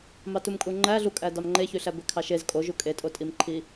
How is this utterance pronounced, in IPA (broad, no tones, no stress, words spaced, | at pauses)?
mɑtumkʼuŋ͡ǃæ ɮukʼæ dɑmŋ͡ǃeçyɬæ bekʰɑʃez kʼoʒu kʼetʼotʼimǃʰi